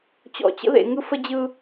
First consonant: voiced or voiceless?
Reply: voiceless